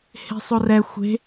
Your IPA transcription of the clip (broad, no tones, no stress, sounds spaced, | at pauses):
h e̤ sˤ o r ɛ xʷ e̤